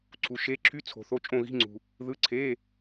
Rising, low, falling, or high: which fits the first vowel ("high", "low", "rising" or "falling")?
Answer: low